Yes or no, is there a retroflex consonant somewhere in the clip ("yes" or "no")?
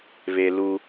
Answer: no